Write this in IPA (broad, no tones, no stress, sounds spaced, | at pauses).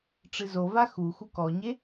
ʈ͡ʂ ɨ z o v a x u x u k ɔ ɲ e